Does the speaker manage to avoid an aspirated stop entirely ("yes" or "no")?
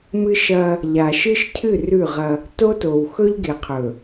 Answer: no